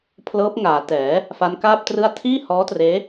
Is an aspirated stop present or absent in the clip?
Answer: present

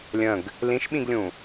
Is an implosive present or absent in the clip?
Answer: present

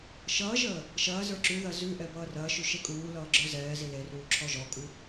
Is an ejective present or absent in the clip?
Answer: present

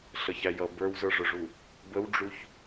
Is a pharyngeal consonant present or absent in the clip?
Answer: absent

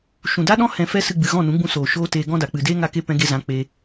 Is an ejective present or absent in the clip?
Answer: absent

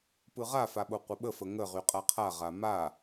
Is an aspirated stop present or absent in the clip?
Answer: present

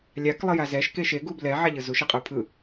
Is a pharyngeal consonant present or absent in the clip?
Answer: present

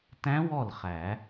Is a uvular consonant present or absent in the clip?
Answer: present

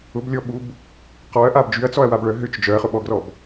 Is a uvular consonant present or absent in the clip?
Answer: present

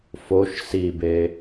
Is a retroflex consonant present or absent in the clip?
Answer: absent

